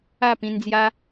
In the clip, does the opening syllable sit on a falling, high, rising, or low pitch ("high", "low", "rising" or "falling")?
falling